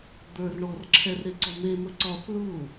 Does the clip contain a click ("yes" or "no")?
yes